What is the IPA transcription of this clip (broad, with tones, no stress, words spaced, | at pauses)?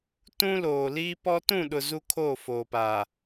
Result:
tũ˦loː˨ liː˦pɔ˦ tũ˦˨ɗʊ˨ zu˦kʰoː˦˨foː˨paː˨